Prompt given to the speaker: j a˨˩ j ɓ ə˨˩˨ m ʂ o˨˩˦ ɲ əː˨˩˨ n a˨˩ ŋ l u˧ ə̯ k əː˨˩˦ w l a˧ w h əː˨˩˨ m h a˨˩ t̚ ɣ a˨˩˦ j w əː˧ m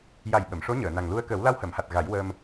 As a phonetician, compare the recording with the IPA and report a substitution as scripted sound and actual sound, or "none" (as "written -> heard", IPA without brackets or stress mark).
o˨˩˦ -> o˧˥